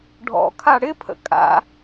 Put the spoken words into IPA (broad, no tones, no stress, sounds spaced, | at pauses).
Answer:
ɖʱ ɔ̰ kʰ a ɽ ɪ pʰ ə̰ kʼ a̰